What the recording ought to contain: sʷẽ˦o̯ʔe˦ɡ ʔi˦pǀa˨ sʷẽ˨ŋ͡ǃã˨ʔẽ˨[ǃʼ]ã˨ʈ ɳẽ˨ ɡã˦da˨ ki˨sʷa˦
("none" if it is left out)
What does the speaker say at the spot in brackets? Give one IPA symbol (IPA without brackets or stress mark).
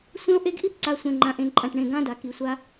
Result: ǃʼ